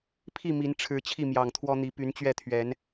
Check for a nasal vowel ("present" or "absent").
absent